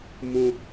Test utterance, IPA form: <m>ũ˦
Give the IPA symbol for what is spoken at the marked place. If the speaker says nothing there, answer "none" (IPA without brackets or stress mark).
m